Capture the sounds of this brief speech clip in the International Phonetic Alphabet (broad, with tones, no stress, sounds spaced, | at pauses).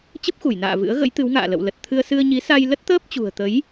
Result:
t͡ɕ ə˦˥ p̚ x u˧˩ j n a̰ː˧˨ v ɨ̰˧˥ ə̯ ɣ ə̰˧˥ j t̪ ɨ˨˦ w ŋ a̰ː˧˨ l ə̰˧˨ w l ə˨˩ t̚ t̪ʰ ɨ˧ ə̯ s ɨ˧ ə̯ ɲ i˨˦ s a˧ j l ə˦˥ t̚ t̪ əː˦˥ p̚ t͡ɕ ṳ˨˩ ə̯ t̪ ə˨˦ j